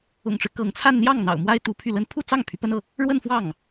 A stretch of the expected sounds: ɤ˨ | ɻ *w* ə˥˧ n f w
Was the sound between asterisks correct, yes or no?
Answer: yes